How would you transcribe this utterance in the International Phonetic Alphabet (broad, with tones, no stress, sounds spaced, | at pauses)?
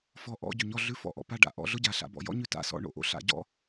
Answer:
f ɔ˨˥ ʔ ɔ̰˧˥˧ ɟ ʉ˩ ɲ ɔ˦˨ ɮ ʉ˧˥˧ f ɔ̰˦˨ ʔ ɔ̰˩ p a˦˨ ɖ a̰˨˥ ʔ ɔ̰˦˨ ɮ ʊ˥ ɟ a˩ ɬ a̰˩˧ b ɔ̰˩ j ɔ̰˥ ɲ ʉ˦˨ t a̰˦˨ s ɔ̰˦˨ ɳ o̰˦˨ ʔ o̰˥ ɬ a̰˨˥ ɟ ɔ̰˥